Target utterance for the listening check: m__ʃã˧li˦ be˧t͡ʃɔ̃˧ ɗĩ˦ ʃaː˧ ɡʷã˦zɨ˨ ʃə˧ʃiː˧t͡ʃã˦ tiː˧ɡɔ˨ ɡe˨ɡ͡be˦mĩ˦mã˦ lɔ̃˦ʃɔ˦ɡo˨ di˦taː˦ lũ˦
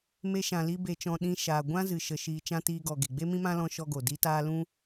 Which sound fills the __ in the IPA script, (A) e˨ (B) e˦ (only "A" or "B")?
B